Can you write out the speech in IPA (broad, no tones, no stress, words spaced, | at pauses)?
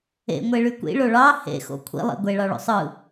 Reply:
ḛŋʷeɭy kʷḭɭo ɭɑ hḛxo̰ kʷʰḭlˠḭ ɡʷeɭɑɭo̰ sˤɯ